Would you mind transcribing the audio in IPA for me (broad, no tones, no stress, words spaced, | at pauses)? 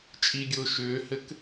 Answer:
t͡ʃʼiɡʲʊː ʃʏːhɘk